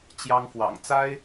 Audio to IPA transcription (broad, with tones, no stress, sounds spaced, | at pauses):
t͡ɕ j ɑ˥ ŋ f w ɑ̰˨˩ ŋ t͡s a˥ ɪ̯